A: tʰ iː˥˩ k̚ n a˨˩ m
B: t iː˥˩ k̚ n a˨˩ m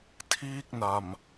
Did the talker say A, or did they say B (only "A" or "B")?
A